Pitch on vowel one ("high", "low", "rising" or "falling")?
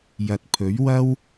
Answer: low